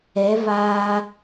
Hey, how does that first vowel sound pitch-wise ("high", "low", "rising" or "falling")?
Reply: rising